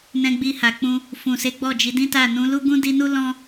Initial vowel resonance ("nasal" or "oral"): nasal